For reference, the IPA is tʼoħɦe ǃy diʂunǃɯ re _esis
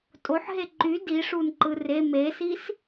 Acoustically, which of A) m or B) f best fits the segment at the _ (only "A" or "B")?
A